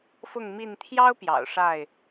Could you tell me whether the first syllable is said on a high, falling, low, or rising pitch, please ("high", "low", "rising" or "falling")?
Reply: falling